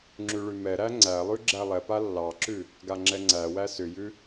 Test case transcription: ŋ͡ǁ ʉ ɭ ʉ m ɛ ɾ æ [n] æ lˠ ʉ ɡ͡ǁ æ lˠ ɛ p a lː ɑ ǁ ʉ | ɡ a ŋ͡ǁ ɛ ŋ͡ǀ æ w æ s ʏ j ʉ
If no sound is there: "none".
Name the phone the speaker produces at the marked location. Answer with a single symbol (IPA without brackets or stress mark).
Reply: ŋ͡ǀ